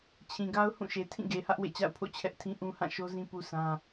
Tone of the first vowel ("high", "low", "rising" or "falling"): low